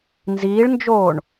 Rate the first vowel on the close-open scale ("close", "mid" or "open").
close